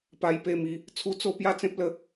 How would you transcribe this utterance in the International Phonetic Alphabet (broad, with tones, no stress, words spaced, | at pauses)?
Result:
pa˧jpe˧mi˨˦ | t͡sʰu˦t͡so˥˧ pja˥˧t͡sẽ˦p̚ lə˦